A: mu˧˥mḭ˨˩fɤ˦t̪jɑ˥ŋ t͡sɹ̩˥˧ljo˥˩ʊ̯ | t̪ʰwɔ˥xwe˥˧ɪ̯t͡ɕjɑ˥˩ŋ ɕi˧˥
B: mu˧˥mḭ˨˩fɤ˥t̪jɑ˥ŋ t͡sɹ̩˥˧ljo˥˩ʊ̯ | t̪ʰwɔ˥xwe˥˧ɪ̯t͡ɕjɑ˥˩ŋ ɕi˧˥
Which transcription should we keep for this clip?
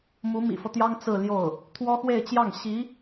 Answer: A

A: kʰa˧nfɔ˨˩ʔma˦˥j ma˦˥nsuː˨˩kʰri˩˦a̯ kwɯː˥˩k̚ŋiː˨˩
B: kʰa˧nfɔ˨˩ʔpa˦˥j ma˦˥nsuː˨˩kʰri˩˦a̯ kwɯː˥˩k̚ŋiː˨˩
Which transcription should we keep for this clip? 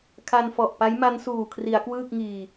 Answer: B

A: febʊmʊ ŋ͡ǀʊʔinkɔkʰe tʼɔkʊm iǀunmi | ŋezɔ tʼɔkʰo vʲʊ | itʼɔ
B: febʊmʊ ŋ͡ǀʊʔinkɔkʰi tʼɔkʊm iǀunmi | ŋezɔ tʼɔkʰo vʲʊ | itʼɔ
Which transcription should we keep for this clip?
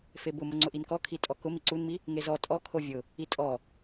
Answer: B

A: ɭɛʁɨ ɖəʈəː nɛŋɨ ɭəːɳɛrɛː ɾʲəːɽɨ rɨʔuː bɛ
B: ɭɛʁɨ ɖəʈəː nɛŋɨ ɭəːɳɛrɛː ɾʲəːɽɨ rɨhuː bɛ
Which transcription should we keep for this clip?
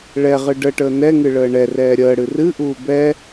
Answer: A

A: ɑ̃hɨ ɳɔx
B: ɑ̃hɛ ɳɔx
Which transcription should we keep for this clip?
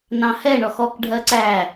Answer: B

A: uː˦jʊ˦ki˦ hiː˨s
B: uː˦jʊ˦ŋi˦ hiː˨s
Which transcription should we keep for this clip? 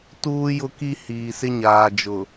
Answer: A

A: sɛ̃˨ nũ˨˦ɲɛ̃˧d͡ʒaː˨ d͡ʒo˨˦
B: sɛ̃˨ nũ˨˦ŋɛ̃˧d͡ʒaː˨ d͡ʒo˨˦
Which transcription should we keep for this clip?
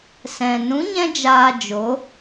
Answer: A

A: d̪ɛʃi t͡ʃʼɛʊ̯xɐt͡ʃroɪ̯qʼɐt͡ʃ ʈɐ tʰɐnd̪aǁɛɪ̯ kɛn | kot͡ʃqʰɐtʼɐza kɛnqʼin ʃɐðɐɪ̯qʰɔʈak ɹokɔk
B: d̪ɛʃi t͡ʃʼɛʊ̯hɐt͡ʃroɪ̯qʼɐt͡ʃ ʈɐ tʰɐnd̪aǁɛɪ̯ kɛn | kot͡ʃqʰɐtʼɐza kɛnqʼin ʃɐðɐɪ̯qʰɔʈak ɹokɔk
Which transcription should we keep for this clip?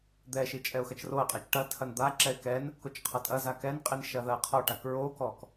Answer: A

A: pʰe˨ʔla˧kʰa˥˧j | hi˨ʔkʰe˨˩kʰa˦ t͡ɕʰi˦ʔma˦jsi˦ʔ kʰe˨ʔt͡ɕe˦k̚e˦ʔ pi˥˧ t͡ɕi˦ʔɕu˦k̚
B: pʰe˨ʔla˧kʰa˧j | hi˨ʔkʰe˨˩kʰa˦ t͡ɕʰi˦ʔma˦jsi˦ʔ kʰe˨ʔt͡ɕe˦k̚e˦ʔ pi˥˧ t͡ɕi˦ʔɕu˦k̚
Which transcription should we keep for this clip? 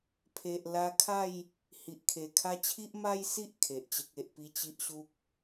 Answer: A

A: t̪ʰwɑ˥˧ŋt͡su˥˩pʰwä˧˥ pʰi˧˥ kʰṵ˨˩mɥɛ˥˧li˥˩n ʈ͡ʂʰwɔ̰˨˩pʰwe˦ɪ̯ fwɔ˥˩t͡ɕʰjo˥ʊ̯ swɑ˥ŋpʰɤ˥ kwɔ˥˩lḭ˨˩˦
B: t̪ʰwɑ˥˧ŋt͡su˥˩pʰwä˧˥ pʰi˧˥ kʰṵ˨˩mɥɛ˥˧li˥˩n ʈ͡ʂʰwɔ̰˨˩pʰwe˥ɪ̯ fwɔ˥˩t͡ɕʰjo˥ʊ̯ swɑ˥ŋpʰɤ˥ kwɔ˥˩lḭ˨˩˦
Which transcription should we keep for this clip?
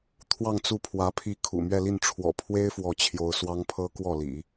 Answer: B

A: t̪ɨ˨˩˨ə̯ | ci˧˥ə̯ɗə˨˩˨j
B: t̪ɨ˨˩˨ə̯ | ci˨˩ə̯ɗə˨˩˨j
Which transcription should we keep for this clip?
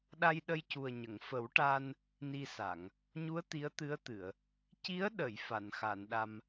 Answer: A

